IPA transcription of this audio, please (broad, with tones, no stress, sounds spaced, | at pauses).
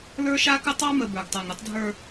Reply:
l ə˞˦ ʃ a˦ k ə˦ tˤ ɑ˦ m ə˨ b ə˞˨ ɡ tˤ a˨ ŋ ɾ ə˦ tˤ dʱ ə˞˦